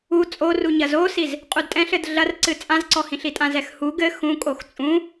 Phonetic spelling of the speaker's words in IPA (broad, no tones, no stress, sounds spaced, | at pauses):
u t͡sʼ o r u ɲ ɐ z o s i z | qʼ u d tʼ ɛ̃ ɬ ɘ d ɮ ɐ r ǀ ɨ t͡sʼ ã z ǀ ɔ h ĩ ɬ i tʼ ã z ɛ x h u ɡ ɘ x ũ kʼ o x t͡sʼ ũ